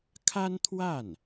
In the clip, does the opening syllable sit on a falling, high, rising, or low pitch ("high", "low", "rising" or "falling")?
high